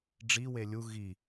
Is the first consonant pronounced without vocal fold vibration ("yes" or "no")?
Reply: no